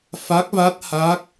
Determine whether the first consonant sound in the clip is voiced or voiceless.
voiceless